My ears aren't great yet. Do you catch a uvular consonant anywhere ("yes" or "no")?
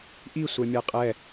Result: yes